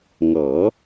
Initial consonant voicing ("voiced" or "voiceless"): voiced